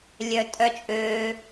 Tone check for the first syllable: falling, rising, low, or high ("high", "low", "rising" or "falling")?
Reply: high